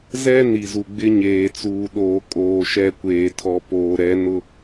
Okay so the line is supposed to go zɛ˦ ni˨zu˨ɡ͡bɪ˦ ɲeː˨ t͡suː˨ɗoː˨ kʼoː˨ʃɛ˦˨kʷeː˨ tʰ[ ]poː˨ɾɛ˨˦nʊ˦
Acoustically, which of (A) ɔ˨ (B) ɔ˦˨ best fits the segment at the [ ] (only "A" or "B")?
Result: A